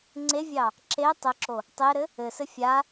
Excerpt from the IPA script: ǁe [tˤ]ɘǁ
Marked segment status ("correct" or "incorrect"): correct